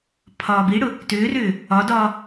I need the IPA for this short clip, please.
pʰ ɒː b i ɽ ʊ | t ʏː r ʏː | ɒ d ɒː

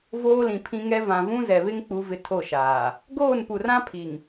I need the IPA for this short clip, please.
v oː˦ l ĩ˨ pʰ ĩ˦ ŋ ɛ˦ v ã˨ v ũ˦ z ɛ˨ β ɪ˦ ŋ k͡p u˦ v ɪ˦ tʰ o˦˨ ʃ aː˨ | ɡ oː˦˨ n p u˨ r ã˦ pʰ i˨ ŋ

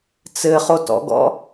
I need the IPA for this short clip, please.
t͡s ɘ χ o t ɔ̰ ɡ ɔ̰

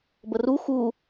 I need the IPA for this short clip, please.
b ə r u x u

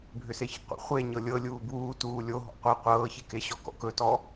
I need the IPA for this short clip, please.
bʱ ʏ s e ç ə̰ qʷ ə̰ χʷ e ɲ ɤ lʲ ɤ lʲ uː b uː t uː lʲ o ɦ ɔ̰ qʷ e qʷ ɤː ç e k e ɕ ɔ k ɔ̰ k ɵ t ɔ

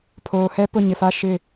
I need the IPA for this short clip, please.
pʰ oː˨ h ɛ˦ p ʊ˦˨ ɲ ɪ˨ f a˦ ʃ ɪ˦˨

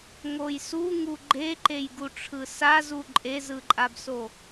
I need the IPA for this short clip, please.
ŋ o j s u ŋ u ɡ͡ǃ e ǃ e j ɡ u ʈ͡ʂʰ ɯ s a z u ǃʼ e z ɯ ǃʼ a b s o

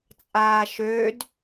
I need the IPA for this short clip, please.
t͡sʼ aː ʃ ø d

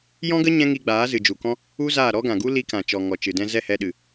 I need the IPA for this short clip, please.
j ɔ̃˦ ɡ ə˦ ɲ ɛ̃˦ ŋ i˧ ɡ͡b aː˨˦ z ɨ˨ d͡ʒ u˨ k ɔ̃˦ | u˦ z aː˦˨ ɾ ɔ˦ ɡ ã˨ ɡ u˦ l i˧ k ã˨ t͡ʃ ɔ˨ ŋ ɔ˨ t͡ʃ ɨ˨ d ɛ̃˧ z ɛ˦˨ h ɛ˧ ɗ ɨ˨

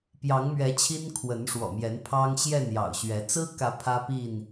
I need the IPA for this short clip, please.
p j ɑ˨˦ ŋ m ɥ ɛ˨˦ t͡ɕʰ i˦ n kʰ w ə˨˦ n ʂ w ɔ̰˨˩ m j ɛ˨˦ n pʰ ɑ˦ ŋ ɕ j ɛ˥˨ n j ɑ̰˨˩ ʊ̯ ɕ ɥ ɛ˨˦ t͡s ɹ̩˦ k ä˨˦ pʰ ä˦ p i˥˨ n

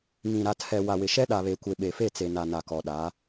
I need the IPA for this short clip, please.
ŋ ĩ˨ ɾ a˨ tʰ ɛ˨ w a˨ w ɪ˨ ʃ ɛ˦ ɗ a˨ β e˨ kʷ e˨ ɓ e˨ f e˦˨ t͡s e˨ n a˨ n a˨ k ɔ˨ ɗ a˨˦

